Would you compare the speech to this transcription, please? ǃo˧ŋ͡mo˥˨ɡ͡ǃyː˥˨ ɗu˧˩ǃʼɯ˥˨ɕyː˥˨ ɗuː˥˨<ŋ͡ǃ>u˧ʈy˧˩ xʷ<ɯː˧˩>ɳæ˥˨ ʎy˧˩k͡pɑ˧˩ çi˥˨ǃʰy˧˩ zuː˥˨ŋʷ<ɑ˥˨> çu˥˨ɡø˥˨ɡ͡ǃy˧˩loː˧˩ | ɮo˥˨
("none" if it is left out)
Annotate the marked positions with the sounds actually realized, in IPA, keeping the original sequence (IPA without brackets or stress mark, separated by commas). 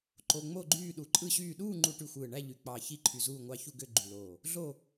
ŋ͡ǃ, ɯː˧˩, ɑ˥˨